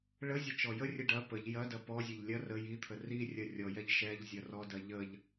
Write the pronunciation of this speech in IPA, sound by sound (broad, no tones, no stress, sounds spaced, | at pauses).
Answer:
ɭ ə zʲ ə t͡ʃ ɔ j ə rʲ ɛ ɖ ɐ p ə ʎ j ɐ d ɐ p ɔ zʲ ɐ ʎ lʲ ɐ r ə j i t̪ʰ ə r i rʲ ɐ rʲ ɔ j ɛ ʎ ʃ ɛ ʎ zʲ ɐ r ɔ d ɐ ʎ ə ʎ